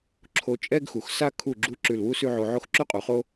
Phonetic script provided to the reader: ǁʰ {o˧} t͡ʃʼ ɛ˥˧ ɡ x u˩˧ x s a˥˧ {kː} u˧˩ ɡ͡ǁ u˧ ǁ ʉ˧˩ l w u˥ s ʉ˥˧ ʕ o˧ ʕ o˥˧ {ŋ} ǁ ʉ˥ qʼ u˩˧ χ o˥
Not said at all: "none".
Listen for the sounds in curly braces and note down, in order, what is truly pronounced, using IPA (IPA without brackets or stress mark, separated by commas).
o˧, kʰ, x